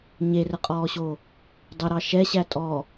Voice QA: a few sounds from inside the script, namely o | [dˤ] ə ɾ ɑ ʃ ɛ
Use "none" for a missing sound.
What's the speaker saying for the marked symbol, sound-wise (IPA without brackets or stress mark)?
dˤ